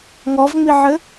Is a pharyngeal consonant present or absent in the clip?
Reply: present